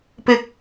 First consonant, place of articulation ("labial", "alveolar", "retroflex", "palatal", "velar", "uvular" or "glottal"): labial